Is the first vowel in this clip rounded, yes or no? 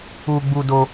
yes